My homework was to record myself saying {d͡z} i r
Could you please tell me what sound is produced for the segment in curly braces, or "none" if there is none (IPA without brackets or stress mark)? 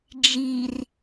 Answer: d͡ʒ